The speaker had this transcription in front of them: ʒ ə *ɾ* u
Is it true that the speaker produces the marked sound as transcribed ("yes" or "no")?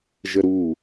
yes